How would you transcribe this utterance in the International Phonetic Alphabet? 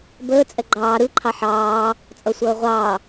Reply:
bəː t͡sʼɛɡ͡ǃɑː ɾɯ ǃʰɑħɑː | t͡sʼʌsʷʌːʁʷɑː

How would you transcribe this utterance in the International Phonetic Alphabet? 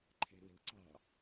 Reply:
ǃʰɛ̤ðə̤ǀɑ̤

